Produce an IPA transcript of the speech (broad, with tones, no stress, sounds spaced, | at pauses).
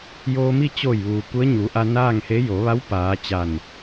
j oː˧ m i˥˨ t͡ɕ oː˧˩ j ʋ uː˩ k u˧˥ ə̯ ɲ u˩˧ ʔ a˧ n aː˥˨ ŋ h e˧˥ j o˩˧ ʋ a˧˥ w p aː˩˧ t͡ɕ a˧˩ n